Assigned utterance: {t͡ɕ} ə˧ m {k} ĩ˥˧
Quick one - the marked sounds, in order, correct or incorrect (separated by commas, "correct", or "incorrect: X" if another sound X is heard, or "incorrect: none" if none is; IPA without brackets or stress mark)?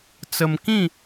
incorrect: t͡s, correct